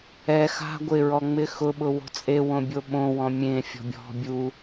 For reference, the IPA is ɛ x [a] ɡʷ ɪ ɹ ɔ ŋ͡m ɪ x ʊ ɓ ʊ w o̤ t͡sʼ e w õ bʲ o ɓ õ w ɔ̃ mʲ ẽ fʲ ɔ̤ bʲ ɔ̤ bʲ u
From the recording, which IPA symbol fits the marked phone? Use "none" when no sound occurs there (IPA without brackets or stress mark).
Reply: a̤